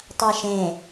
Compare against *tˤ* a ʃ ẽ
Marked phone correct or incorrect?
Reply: correct